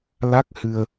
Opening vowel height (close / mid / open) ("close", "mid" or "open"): open